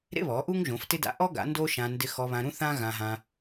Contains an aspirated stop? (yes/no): no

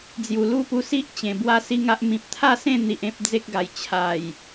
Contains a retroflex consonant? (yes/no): no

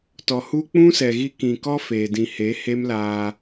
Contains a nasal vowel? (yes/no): yes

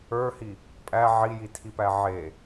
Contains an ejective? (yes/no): yes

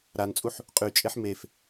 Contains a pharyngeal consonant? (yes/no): yes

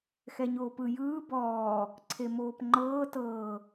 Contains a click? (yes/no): yes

